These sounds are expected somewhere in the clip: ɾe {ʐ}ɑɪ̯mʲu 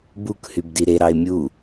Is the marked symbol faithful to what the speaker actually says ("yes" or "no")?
no